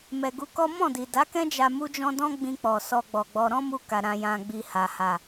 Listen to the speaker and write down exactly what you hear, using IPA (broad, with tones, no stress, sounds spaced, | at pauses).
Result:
m ɛ˨ ɡ u˨˦ k ɔ˦ m ɔ̃˦˨ d i˨ d a˨˦ k ɛ̃˦ d͡ʒ a˧ m u˦ d͡ʒ ɔ̃˦ d ɔ̃˦ ɡ͡b ĩ˧ k͡p ɔ˨ s ɔ˧ ɡ͡b ɔ˨ ɡ͡b ɔ˧ ɾ ɔ̃˦ m u˧ k a˨ ɾ ã˧ j ã˧ ɡ͡b i˧ h a˨ h a˨